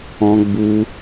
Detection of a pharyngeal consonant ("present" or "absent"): absent